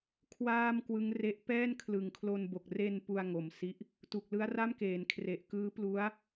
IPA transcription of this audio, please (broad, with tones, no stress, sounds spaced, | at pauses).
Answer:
kʰ w aː˥˩ m k w ɯ˦˥ ŋ r e˦˥ ʔ p ɛː˥˩ n kʰ l ɯ˩˦ ŋ kʰ l o˧ n b o˨˩ k̚ r e˧ n p u˧ a̯ ŋ o˩˦ m s i˦˥ ʔ | t u˨˩ k̚ l ɯ˦˥ a̯ r a˥˩ m k eː˩˦ n kʰ r e˨˩ ʔ k ɯː˦˥ p l u˦˥ a̯